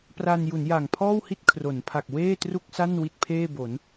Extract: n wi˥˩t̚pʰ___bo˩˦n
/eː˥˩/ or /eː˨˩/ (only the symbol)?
eː˥˩